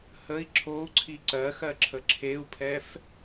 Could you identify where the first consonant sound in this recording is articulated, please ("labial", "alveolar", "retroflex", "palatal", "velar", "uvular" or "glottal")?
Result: glottal